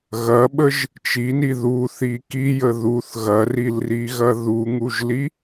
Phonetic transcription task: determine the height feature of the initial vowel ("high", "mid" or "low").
low